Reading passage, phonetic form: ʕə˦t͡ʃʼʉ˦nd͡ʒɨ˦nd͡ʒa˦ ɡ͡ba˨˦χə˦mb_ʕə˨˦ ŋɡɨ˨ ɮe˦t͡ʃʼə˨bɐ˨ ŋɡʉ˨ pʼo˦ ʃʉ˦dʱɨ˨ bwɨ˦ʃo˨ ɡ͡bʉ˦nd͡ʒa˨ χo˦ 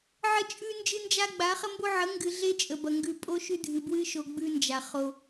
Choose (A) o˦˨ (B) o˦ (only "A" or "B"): B